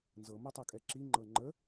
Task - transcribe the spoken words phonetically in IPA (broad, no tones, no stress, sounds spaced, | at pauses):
n z ɤ m ɤ tˤ ɤ kʼ ɛ ǁ i ŋ͡ǃ ɤ ŋ͡ǃ ə